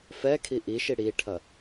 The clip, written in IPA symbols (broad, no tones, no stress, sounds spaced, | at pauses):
f ɛ kʰ i ʔ i ʃ i ɽ i ʈʰ ɐ